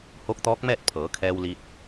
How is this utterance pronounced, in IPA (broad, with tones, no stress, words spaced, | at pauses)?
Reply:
hoː˧˥k̚t̪ɔː˧˥k̚mɛː˥˨t̚ pʰɤː˩˧kʰɛː˧wli˧t̚